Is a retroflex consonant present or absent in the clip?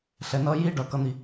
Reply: present